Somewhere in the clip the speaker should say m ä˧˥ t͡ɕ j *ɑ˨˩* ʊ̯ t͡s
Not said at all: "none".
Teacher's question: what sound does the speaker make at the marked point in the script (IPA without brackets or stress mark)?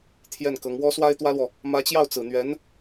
ɑ˥˩